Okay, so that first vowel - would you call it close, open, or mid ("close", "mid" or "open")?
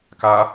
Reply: open